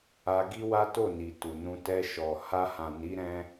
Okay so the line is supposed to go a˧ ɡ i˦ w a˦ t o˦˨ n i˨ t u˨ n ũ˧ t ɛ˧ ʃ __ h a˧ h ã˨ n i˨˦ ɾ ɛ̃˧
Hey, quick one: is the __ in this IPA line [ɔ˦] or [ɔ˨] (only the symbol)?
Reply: ɔ˨